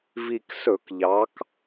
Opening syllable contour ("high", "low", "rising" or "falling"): low